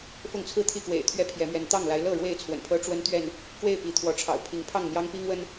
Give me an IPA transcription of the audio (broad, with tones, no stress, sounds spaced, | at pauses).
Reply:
f ʊ˥˨ ŋ t͡sʰ ɹ̩˥˨ t̪ʰ i˥˨ k w ḛ˨˩ ɪ̯ t̪ʰ ɥ ɛ˦ pʰ j ɛ˨˦ m ɥ ɛ˨˦ n t̪ ɑ˥˨ ŋ l a˨˦ ɪ̯ l ɤ˥˨ ɻ w e˥˨ ɪ̯ t͡sʰ w ə̰˨˩ n pʰ ɤ˦ ʈ͡ʂ w ə˦ n t̪ ɥ ɛ˥˨ n | k w e˥˨ ɪ̯ p i˨˦ t̪ʰ w ɔ˨˦ ʈ͡ʂʰ ɑ̰˨˩ ʊ̯ pʰ i˨˦ ŋ pʰ ɑ˥˨ ŋ n̪ j ɑ˦ ŋ p i˦ ŋ w ə˦ n